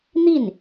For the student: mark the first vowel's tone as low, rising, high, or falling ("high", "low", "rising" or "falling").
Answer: falling